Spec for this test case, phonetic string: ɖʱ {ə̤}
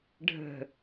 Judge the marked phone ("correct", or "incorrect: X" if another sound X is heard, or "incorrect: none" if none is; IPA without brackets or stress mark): correct